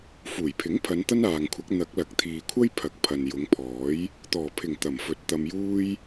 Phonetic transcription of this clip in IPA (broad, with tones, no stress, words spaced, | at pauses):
fuː˨˩jpʰɪ˨˥ŋpʰɐ˨˧n t̪ɐ˥naː˨ŋkʷʰɐ˨˥k̚ n̪ɐ˨˥k̚lɐ˨˥k̚ t̪ʰiː˨kʷʰɐ˥j pʰɐ˨k̚ pʰɐ˨njʊ˨˧ŋpʰɔː˨˥j | t̪ɔː˨˩pʰɪ˨˩ŋ t̪ɐ˨˩m fɵ˨˥t̚t̪ɐ˧mjuː˥j